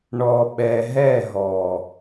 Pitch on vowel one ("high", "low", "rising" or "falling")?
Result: low